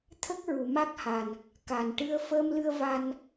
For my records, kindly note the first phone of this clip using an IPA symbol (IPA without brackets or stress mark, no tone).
t̪ʰ